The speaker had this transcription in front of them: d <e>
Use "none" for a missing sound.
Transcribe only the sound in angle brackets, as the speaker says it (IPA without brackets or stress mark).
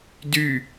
y